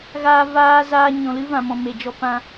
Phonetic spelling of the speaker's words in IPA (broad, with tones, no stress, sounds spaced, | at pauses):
ɣ aː˧ v aː˧ z aː˧ ɲ ɔ̃˨ l ɨ˦ v ã˨ m ɔ̃˨ m e˨ d͡ʒ ɔ˧ p ã˧